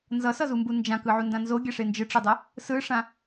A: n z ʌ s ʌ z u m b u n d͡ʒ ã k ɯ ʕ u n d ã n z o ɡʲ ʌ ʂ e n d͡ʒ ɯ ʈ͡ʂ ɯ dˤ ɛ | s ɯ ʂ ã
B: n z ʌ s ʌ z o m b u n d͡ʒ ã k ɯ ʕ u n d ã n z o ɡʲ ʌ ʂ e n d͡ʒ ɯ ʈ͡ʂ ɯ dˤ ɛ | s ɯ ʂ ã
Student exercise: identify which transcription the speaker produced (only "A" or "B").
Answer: A